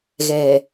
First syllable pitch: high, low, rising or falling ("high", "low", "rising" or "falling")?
low